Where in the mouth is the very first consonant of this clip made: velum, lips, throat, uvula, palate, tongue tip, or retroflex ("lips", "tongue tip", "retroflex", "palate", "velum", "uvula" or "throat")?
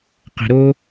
uvula